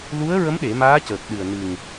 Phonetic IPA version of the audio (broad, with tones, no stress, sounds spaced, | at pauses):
l u˧˥ ə̯ ɹ ə˧˥ m ɗ e˨˩˦ m aː˧˥ c əː˨˩ k̚ ɗ ɨ˨˩ ə̯ n ɨ˨˩ ŋ